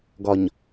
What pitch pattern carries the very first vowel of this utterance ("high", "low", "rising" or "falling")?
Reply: low